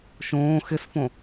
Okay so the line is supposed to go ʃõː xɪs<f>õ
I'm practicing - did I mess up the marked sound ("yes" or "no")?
no